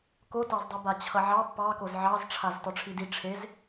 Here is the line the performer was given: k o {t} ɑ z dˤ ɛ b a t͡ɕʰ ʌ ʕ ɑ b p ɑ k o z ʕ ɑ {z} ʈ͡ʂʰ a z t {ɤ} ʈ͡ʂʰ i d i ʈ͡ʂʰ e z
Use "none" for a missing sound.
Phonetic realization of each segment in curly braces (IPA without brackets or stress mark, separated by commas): t, z, ɔ